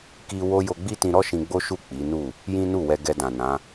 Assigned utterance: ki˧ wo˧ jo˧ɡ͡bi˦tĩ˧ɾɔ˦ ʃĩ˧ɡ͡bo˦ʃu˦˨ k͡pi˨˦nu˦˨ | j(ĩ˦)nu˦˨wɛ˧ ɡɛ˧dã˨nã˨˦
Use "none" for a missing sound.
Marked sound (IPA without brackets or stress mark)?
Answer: ĩ˦